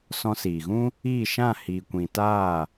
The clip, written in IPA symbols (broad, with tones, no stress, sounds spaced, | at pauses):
s ɔ̃˧ s iː˨ ɣ ũ˦ | iː˦˨ ʃ ã˦˨ h iː˨ kʷ ĩ˨ t aː˦˨